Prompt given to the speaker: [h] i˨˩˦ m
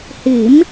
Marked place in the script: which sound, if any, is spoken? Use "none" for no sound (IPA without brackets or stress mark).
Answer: h